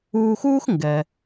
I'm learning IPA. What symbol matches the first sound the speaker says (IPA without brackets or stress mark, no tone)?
uː